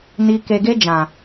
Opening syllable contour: low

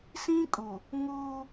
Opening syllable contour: high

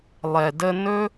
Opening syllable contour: low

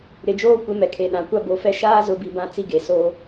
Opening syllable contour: low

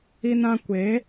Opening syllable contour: high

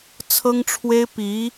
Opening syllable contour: high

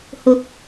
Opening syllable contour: rising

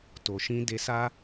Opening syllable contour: low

